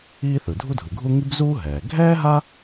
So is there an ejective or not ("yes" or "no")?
no